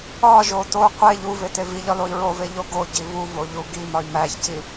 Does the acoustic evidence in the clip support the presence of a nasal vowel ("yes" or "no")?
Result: no